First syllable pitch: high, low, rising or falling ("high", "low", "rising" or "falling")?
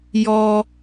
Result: high